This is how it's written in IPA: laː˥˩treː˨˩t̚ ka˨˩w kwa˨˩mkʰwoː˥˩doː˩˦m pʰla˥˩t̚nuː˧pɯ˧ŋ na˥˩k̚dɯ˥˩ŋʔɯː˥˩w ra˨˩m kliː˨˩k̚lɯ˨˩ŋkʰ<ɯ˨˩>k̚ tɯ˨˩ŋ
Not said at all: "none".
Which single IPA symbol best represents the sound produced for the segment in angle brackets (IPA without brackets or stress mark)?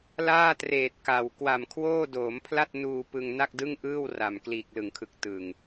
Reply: ɯ˨˩